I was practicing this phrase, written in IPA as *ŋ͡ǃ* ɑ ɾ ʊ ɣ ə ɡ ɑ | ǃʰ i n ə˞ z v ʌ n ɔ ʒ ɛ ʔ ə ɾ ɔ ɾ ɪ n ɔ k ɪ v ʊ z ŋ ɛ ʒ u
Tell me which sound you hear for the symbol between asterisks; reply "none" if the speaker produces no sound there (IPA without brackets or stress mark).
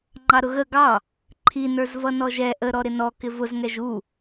ŋ͡ǃ